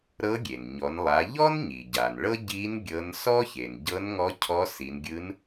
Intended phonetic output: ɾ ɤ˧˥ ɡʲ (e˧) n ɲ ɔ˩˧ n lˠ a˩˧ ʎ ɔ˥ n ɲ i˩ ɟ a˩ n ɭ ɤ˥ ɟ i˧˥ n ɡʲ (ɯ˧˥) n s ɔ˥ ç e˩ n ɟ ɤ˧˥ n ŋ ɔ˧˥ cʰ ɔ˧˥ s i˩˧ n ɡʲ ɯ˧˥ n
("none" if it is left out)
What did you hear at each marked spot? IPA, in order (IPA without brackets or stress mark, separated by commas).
e˩, ɤ˧˥